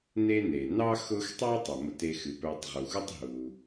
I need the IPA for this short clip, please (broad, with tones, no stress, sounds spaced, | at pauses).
n e˦ n e˩ n ɑ˥ x ʊ˦ x tˤ ɑ˥ tˤ u˩ m ʊ˦ t e˦ x ɨ˨ p œ˦ tˤ ʁ u˩ x u˥ tˤ ɦ u˨